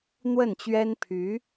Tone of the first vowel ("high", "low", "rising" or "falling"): falling